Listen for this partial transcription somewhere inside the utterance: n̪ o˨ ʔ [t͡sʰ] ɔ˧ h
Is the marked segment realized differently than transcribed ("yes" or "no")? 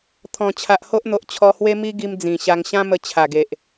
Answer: yes